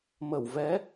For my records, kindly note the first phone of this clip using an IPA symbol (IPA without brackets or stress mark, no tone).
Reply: m